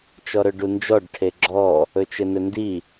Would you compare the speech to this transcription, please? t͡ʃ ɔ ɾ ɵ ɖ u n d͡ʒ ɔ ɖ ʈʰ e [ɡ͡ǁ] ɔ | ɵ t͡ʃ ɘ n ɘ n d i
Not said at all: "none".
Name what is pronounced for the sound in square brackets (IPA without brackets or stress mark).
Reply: ɡ͡ǁ